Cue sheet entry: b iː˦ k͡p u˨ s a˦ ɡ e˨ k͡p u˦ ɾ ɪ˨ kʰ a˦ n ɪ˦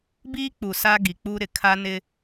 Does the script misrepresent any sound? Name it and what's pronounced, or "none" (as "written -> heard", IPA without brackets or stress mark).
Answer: e˨ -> i˨